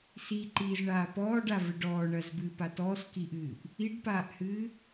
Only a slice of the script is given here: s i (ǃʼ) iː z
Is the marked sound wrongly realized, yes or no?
yes